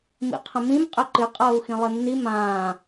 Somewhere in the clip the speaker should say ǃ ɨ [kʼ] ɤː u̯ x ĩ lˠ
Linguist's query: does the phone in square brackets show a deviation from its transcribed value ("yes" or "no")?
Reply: yes